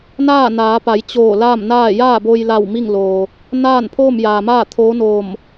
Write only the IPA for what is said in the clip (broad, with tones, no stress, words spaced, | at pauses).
naː˥˨ naː˩˧pa˩˧j t͡ɕoː˧˩laː˥˨mnaː˥˨ jaː˥˨bo˧jla˧˩w mi˥˨ŋloː˩ | naː˥˨npʰoː˥˨mjaː˩maː˥˨ t̪ʰoː˧˥noː˧˩m